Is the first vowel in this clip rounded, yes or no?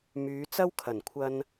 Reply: yes